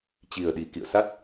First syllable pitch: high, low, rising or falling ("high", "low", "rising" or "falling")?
low